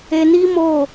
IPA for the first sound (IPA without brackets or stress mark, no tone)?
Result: e